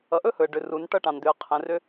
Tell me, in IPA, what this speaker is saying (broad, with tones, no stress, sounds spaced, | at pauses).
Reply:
ʌ˨ ʔ ɵ˦ h ɵ˨ ə̯ ɖ ʏ˨ r u˨˦ n ʈ ʌ˦ ʈ ɑ̃˨ n d̪ ʏ˨ ə̯ qʰ ɛ̃˨ r ʏ˦